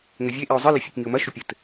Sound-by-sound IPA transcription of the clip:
ŋɘvʲeʔiʊ̯ zˤɨlɘ fʲɨkŋiʊ̯mɐʃu pʲɘt

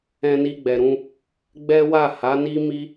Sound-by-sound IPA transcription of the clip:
ɛ̃˧ni˧ɡ͡bɛ˨ɾũ˧ | ɡ͡bɛ˦wa˦˨ ha˨˦ni˦mi˦

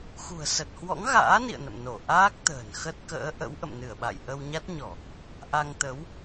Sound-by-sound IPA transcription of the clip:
xṳ˨˩ə̯ sə˨˩t̚hwɔ̰˧˥ŋɣa̰ː˧˥nḭ˧˨ə̯ nə̰˧˨mno˧˩ ʔaː˦˥k̚t̪ə̤ː˨˩nxə˦˥t̚ kə̰ː˧˥ʔə̰˧˥w ʔə̰˧˨mnɨ˧˩ə̯ɓa̰˧˨j ʔə˧wɲa˦˥t̚ɲɔ˧˩˨ | ʔa˧ŋt̪ə˨˦w

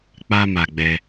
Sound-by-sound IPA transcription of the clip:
k͡pa˧ma˨ ɡ͡bɛ˧

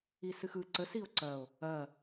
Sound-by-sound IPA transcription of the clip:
isɨxɯ ǀə sio̯ǀɐo̯ | ɐ

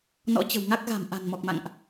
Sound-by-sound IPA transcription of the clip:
nɔ̰˧˥t͡ɕə̤˨˩wŋa˦˥k̚ɣa̤˨˩m ʔa̤˨˩nmɔ˨˩k̚ma̰˧˨ŋʔ

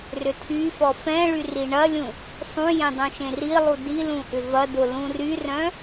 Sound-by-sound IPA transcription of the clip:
rʏtʰyfɔ fɛ̃ɭy riɳɐlʲũ | sˤũjẽ dˤũʃẽrilˠu dilũ ʔʏvɐdʊ lũryrœ̃

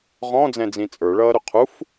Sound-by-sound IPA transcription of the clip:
ʁɔ̃d͡zɛ̃d͡zĩ t͡sʼə˞ɭʌːɾʊ qʰuf

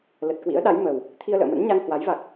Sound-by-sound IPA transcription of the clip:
lə˨˩t̚kwḭ˧˥ə̯ɗa˨˦j mə˨˩w | t̪ʰi˧ə̯lə̰ː˧˨mə̰˧˥nɲa˧ŋ hwa˨˦jva˨˩k̚

